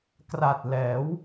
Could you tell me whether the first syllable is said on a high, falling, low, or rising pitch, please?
low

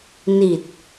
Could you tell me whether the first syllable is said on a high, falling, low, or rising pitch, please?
low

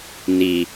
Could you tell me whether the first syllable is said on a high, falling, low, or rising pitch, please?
low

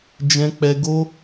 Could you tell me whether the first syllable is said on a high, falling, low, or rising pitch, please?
high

